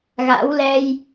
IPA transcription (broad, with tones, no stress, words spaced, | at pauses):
ɣa̰˧˥w lɛ˧j